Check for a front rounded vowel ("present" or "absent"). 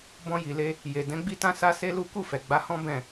absent